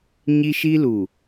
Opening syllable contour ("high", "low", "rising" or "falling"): high